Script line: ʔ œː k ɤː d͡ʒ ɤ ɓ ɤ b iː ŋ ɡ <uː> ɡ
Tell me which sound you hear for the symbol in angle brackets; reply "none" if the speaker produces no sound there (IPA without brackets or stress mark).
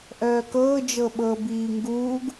uː